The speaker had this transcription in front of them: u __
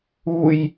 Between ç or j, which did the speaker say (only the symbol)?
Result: j